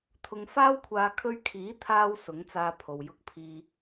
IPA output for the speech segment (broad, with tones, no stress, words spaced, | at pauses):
t̪ʰʊ˧ŋ faː˥wkʷʰaː˧ kʰɵ˧ɥkʰiː˨˥t̪ʰaː˧w sʊ˨˥ŋt͡saː˧ pʰo˨w jʊ˧k̚ pʰiː˧